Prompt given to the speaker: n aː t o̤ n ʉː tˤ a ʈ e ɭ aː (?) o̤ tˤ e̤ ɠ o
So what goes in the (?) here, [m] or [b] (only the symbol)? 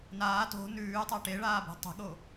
b